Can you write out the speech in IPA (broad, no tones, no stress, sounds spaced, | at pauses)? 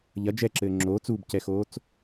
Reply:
ʎ ɐ d͡ʒ ɛ ǁ ɘː ŋ͡ǁ oː t͡s u b c ɛ x oː t͡s